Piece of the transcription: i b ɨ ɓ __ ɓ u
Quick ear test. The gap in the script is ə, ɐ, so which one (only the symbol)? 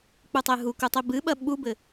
ɐ